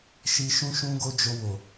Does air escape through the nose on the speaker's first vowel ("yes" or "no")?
no